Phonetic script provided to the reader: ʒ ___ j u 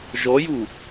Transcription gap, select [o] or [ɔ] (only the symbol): ɔ